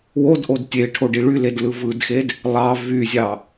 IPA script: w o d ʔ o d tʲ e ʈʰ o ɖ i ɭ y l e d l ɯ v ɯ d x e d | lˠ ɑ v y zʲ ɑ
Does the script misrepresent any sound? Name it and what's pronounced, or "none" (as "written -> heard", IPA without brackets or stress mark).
none